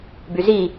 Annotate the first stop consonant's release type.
plain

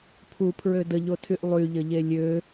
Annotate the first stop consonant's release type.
aspirated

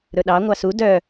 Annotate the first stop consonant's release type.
implosive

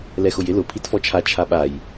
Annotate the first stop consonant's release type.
aspirated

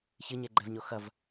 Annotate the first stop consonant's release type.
click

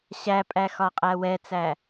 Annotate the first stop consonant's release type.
ejective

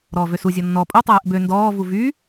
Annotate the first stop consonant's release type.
ejective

